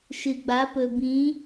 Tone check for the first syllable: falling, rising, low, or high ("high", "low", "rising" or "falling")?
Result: low